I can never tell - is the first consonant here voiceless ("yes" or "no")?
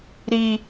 no